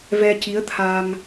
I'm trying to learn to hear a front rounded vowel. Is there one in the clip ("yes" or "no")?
no